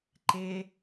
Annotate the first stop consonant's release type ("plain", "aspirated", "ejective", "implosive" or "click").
click